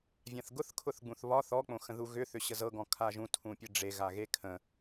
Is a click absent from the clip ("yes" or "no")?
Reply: yes